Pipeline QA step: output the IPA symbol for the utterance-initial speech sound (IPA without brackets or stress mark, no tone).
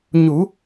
ɲ